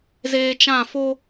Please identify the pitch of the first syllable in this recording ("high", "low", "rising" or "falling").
high